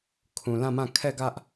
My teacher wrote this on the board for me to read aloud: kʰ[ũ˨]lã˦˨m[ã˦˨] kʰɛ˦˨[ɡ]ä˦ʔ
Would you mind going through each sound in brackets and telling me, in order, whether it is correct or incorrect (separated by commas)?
correct, correct, correct